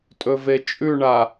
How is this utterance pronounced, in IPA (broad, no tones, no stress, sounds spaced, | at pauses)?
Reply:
tʼ ɵ v e t͡ʃʼ ʉ ɳ a